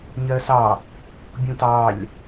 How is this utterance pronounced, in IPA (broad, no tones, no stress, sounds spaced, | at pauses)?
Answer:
ɲ ɜ s ɑ | bʲ ũ t ɑ lʲ